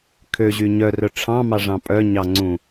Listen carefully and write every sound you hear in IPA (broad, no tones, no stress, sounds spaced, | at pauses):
kʰ ø ʑ y ɲ œ r œ ʈ͡ʂʰ ɑ̃ m ɑ ʐ ɑ̃ pʼ œ ɲ ɑ ŋ͡ǀ ũ